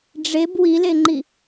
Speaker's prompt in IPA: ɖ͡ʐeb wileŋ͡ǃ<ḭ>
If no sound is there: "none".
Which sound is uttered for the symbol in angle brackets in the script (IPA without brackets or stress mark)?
i